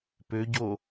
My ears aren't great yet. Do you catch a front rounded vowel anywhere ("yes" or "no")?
yes